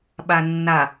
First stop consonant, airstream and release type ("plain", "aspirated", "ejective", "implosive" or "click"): implosive